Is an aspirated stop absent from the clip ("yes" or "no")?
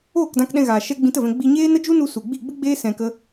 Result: yes